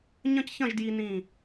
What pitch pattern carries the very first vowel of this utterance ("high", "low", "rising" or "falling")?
high